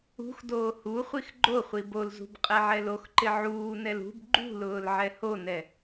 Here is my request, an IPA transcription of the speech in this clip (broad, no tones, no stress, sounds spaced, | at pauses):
ṳ x d oː h u χʷ i x ɡ͡ǃ o χʷ i b o l z ṳ b qʼ ɛ ʕ ɛ l o x ǃ ɪ ʕ uː n ɛ l ṳ b ɡ͡ǃ ṳ l ʊː l ʕ ɛ h o n ɛ